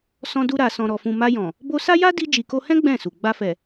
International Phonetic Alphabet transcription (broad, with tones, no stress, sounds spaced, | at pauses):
s ɔ̃˧ d u˧ ɾ a˨ s ɔ̃˨ ɾ ɔ˨ f ũ˨ m a˧ j ɔ̃˨ | b o˧ s a˦ j a˦ d i˧ d͡ʒ i˨ k o˧ h ɛ̃˦ ɡ͡b ɛ̃˦˨ s u˨ ɡ͡b a˧ f ɛ˨